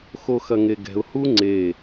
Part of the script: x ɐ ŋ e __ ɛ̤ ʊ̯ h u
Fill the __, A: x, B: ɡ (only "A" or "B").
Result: B